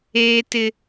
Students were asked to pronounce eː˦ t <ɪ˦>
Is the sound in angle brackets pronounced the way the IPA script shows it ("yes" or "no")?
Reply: yes